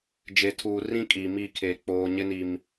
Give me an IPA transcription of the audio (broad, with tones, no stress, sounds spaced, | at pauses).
d͡ʒ e˨ tʰ uː˨ r ĩ˦ kʼ iː˨ m i˦˨ kʰ eː˨ k͡p oː˨ ɲ ɪ˦ n i˨ m